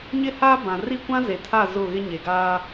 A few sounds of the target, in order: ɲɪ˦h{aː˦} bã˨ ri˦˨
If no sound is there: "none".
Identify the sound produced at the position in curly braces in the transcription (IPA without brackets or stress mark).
aː˦